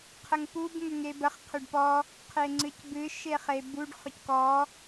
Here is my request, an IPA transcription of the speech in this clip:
qʰ ə ŋ p u b ŋ ʏ ŋ e b ə χ qʰ ʏ ɖ p ɔ | qʰ e ŋ͡ǀ ɨ c b ɨ ʃ e χ e b u ɖ χ ʏ c k ɔ

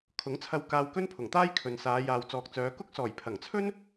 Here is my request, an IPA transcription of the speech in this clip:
kʰ ʊ˨˥ ŋ t͡sʰ ɐ˧ w k aː˧ w k ɵ˥ n pʰ ʊ˨˩ ŋ t̪ aː˥ j kʰ ɵ˨ n s aː˨˧ j aː˨ w t͡s ɔː˨ k̚ t͡s œː˨˧ k ʊ˥ k̚ s ɔː˨˩ j pʰ ɐ˨˩ ŋ t͡sʰ ɵ˥ n

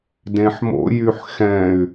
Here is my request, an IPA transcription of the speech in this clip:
d ẽ ħ m o̰ j y ħ x ɛ̃ y̯

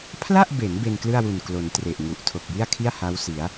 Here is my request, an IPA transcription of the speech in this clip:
pʰ l a˥˩ ʔ b e˩˦ n b e˧ n k l ɯ˥˩ a̯ w u˨˩ n k l o˩˦ n t r e˨˩ ʔ ŋ u˨˩ ʔ tʰ o˨˩ k̚ j i˥˩ a̯ kʰ i˥˩ a̯ h a˦˥ w s i˩˦ a̯

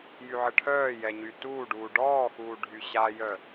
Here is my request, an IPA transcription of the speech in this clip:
j y ʕ ə ʈʰ œː j ɛ ɲ y t uː ɖ uː ɖ ɔː x uː ɖʱ y ɕ a j œ

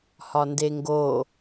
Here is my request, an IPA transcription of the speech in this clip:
h ɒ n d e ŋ ɡ o

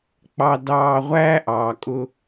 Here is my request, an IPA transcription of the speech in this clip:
k͡p ɑ˨ d ɑː˨ ʁʷ æː˦ ʔ ɑː˨ kʼ ʊ˦

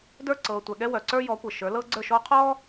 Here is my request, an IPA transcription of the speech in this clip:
d ə˞˦˨ ǀ ɤː˨ tʷ ɛ˨ ɠ ɛ˦ w œ˨ ǀ ə˞˦ j ɔ˨˦ kʷ ɤ˨ ʃ ə˞˨˦ l ɤː˦ ɡ͡ǀ ə˞˦˨ ʃ ɔː˦ qʰ ɔː˦

